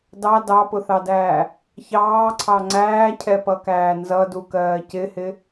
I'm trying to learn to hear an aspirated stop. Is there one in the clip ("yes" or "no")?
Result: yes